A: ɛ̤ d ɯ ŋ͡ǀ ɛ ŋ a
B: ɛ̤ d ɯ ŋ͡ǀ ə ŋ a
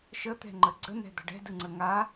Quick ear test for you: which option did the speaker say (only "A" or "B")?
B